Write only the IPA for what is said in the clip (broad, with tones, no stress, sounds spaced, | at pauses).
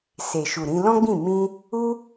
s e˨ ʃ u˨ ɾ ĩ˧ l ɔ̃˦ ɡ͡b ĩ˦˨ m ĩ˧ | u˧